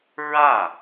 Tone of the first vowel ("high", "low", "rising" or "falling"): falling